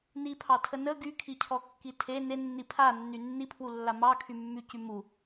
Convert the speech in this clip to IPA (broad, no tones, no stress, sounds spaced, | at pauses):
n i pʰ ɑ tʰ ə n ə ɡ y kʰ i cʰ ɔ kː i tʰ e n e nː i pʰ a nː y nː i pʰ w u lː a m ɑ kʰ y mː y c y m u